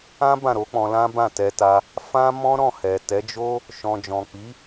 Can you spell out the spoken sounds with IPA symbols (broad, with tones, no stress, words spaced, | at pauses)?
ã˦ bã˦˨ɾo˨˦k͡pɔ̃˧ lã˦bã˦˨ tɛ˧ta˧ | fã˦mɔ̃˦ ɾɔ̃˦˨hɛ˨ tɛ˨˦d͡ʒo˦ | ʃɔ̃˨d͡ʒɔ̃˨k͡pi˨˦